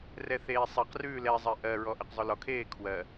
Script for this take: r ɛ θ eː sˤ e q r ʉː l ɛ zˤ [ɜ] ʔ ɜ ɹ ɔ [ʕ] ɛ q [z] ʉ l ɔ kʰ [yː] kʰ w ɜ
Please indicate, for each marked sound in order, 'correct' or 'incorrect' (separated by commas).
incorrect, incorrect, incorrect, incorrect